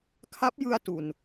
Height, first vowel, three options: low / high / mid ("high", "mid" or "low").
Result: low